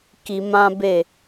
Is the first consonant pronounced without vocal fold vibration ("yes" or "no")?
yes